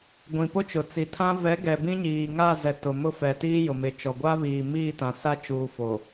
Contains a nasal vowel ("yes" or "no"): yes